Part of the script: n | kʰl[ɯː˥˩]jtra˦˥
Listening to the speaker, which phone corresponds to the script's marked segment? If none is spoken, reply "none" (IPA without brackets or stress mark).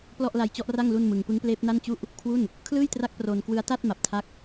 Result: ɯː˥˩